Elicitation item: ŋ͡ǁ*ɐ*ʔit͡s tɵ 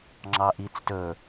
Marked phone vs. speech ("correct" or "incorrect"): incorrect